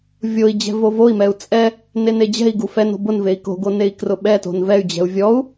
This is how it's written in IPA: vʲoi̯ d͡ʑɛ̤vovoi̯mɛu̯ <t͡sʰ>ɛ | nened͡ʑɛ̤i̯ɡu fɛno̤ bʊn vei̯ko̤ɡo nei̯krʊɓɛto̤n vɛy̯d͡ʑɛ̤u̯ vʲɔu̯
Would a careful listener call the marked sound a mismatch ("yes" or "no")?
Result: yes